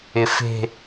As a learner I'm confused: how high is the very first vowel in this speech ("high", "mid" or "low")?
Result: high